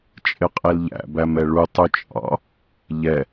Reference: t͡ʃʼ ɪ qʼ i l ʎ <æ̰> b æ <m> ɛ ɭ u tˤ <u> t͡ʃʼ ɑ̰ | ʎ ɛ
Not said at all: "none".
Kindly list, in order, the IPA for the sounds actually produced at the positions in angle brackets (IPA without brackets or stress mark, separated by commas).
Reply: æ̰, m, u